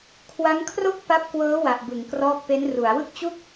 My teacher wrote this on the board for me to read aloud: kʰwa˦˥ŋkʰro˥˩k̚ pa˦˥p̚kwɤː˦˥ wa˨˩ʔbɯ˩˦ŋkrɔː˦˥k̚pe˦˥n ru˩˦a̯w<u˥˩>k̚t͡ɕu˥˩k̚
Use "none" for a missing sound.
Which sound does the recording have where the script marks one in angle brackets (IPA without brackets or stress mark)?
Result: ɯ˥˩